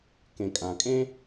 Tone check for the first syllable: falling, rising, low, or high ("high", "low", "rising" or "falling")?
low